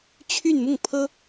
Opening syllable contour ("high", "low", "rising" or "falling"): falling